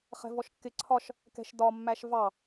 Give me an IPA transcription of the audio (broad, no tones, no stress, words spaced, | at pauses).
χɛ̤vɔʃkːɪ ǀʰɒʃ | kɛ̤ʃdɒ mːæʃvɑ